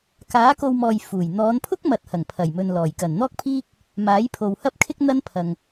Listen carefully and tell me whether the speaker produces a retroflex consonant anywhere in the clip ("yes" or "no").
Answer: no